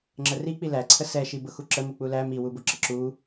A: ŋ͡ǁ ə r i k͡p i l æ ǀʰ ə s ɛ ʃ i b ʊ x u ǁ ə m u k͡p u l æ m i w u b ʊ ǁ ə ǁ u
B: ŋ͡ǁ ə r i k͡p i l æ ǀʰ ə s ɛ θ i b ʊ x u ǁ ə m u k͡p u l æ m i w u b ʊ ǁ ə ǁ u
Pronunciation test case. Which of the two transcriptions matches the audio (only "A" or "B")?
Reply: A